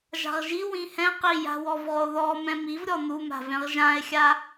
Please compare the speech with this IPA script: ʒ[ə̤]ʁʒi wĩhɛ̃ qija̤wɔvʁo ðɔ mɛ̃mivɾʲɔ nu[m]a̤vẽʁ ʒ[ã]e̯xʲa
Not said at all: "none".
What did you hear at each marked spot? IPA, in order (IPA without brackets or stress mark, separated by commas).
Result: a̤, m, ã